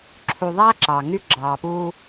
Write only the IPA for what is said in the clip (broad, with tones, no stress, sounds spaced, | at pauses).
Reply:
ǁʰ u˨ ðˤ æː˦ ǁ ɑ˨ ŋ y˦ ɡ͡ǁ ɑː˨ p uː˦